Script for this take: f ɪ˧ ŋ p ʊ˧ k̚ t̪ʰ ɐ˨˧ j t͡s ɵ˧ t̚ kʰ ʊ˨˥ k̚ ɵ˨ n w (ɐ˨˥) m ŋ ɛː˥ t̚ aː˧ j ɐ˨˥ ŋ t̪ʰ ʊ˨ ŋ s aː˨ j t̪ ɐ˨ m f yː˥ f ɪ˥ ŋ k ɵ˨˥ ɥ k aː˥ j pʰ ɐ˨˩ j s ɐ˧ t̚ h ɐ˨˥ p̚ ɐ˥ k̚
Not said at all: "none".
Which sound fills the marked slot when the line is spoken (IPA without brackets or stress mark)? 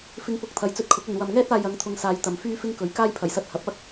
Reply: ɐ˨